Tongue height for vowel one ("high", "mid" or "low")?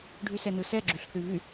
high